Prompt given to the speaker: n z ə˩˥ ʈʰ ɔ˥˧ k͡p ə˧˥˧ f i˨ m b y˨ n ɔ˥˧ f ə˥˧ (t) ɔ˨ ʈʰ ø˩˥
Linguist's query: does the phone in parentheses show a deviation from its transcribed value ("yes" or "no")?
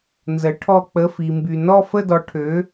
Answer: yes